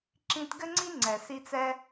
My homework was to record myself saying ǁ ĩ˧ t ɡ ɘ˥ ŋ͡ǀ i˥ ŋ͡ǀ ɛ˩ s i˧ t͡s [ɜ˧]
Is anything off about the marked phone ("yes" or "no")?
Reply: yes